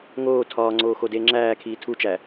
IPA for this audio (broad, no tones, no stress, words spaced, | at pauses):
ŋoː tʰɒːŋ͡ǀoː xodeːŋ͡ǁæːkʰiː tʰut͡ʃæ